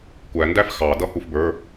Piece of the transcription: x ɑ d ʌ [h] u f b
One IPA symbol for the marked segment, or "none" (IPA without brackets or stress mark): h